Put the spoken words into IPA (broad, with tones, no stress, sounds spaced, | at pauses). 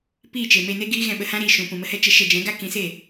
p iː˦˨ t͡ʃ e˨ m e˧ n e˦ ɡ iː˦ ɣ ɛ̃˧ ɓ ə˧ h ã˦ ɾ iː˨ ʃ ũ˨ p ũ˨ m ə˧ h ɛ˦ t͡ʃ ə˧ ʃ ɛ˧ d͡ʒ ɛ̃˨˦ ɡ a˦ k ĩ˨˦ s e˦˨